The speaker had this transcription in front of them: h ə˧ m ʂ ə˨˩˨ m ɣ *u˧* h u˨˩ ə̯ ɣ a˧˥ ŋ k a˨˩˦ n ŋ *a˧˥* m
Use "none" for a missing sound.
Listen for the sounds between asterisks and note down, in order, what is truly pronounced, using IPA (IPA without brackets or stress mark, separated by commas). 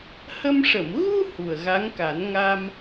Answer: u˧, a˧